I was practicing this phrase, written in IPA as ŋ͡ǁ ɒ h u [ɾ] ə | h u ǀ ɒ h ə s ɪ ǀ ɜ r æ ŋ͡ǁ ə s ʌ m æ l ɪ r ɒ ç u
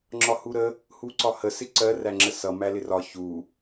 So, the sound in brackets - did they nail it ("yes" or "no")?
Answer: yes